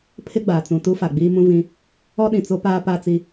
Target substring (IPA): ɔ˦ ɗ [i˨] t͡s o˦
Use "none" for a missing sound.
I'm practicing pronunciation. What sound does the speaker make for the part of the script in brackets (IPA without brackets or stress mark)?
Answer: ĩ˨